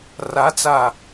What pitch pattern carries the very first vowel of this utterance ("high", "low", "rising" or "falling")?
rising